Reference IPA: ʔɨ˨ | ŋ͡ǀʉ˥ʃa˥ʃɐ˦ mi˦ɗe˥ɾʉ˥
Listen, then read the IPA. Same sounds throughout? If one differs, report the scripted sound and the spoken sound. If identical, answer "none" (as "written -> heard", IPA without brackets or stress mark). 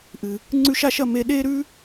i˦ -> e˦